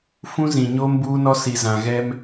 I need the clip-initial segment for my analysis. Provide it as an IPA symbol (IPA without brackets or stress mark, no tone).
f